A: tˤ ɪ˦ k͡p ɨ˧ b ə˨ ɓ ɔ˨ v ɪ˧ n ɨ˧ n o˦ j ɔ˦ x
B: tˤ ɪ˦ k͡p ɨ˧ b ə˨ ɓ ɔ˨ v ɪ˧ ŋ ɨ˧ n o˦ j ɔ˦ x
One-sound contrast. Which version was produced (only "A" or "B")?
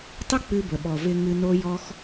B